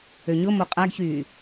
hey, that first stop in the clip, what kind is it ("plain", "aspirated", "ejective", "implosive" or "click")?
ejective